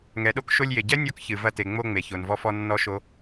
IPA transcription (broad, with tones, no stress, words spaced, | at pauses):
ŋɛ˨˦ɗo˨˦k ʃo˧lʲje˨ɟɛ˦ nʲɔ˧kçɨ˨ vɐ˧te˨ ŋ͡mo˧ ŋ͡me˨ço˨nvɔ˧fɔ˧ nːɔ˦ʃo˦